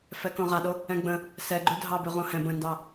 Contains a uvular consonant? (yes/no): yes